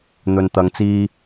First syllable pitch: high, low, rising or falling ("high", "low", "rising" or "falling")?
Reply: low